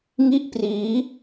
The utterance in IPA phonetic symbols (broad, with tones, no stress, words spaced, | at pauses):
ŋi˥˩ʔpriː˦˥